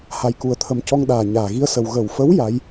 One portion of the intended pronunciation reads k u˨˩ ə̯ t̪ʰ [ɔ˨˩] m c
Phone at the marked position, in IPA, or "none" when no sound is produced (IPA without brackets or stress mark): ə˨˩